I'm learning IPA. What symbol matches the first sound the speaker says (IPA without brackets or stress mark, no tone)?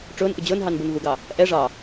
ʈ͡ʂ